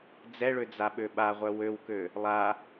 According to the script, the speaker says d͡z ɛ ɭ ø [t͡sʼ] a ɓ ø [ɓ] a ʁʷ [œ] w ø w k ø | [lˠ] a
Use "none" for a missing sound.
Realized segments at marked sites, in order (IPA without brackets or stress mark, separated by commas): d͡z, ɓ, œ, lˠ